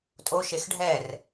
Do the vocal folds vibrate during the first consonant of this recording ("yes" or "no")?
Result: no